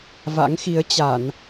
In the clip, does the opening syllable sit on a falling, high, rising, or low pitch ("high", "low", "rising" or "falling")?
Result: rising